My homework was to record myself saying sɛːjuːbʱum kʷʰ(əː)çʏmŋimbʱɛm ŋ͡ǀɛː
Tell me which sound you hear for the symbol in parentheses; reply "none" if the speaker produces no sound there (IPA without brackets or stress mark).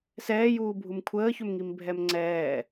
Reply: əː